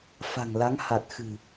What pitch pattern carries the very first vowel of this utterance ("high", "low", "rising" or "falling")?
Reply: low